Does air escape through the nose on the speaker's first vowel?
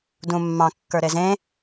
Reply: yes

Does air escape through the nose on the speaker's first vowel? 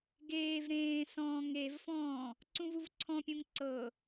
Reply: no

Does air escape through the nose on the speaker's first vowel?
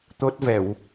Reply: no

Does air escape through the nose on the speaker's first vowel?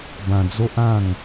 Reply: yes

